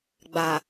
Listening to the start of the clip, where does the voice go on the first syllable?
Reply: low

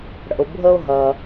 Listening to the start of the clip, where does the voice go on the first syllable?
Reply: low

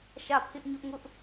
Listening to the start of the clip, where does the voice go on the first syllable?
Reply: falling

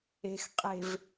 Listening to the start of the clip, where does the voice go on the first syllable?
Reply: low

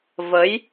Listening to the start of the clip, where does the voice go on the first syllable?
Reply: rising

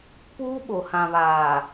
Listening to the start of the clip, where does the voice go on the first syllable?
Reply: high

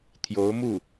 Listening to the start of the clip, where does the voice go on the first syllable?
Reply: rising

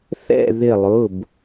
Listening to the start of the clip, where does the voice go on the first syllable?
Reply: falling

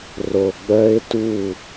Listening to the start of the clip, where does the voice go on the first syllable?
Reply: low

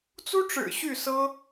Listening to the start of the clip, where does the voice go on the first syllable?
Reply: high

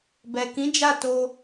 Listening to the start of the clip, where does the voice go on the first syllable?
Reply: low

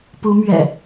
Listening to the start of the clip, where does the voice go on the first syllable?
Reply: rising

